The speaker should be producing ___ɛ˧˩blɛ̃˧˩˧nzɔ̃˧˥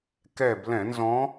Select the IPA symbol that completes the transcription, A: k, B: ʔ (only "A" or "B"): A